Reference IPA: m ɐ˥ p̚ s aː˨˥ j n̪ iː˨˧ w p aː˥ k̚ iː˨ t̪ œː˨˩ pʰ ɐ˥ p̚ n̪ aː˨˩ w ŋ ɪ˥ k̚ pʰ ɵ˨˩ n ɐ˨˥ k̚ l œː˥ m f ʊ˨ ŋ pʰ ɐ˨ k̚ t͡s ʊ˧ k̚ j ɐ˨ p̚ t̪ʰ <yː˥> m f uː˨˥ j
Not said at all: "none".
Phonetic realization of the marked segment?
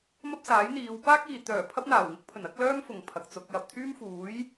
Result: yː˥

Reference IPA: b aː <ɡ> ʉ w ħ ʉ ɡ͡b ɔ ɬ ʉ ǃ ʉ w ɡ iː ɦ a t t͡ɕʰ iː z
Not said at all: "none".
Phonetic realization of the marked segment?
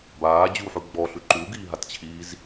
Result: d͡ʑ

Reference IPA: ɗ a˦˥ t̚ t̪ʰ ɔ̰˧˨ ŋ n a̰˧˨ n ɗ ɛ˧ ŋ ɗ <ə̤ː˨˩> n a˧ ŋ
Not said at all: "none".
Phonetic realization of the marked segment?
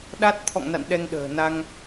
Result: ə̤ː˨˩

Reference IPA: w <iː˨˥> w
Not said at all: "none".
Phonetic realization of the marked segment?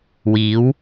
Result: iː˨˥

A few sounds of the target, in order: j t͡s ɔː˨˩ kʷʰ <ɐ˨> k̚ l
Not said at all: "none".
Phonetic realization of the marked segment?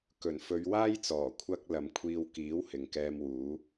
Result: ɐ˥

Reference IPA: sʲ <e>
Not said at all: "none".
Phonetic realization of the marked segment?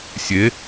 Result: e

